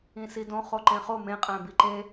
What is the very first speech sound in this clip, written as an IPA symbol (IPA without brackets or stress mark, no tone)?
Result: ĩ